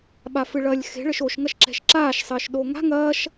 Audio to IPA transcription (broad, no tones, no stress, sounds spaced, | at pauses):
ɓ a f ɨ ɭ ɐː lʲ x e̤ ɭ ɘ ʃ o ʃ ŋ ɐ ʃ ǁ ɛ̤ ʃ ǁ aː ʃ sˤ ɘː ʃ ɗ o ŋ a̤ ŋ ɐː ʃ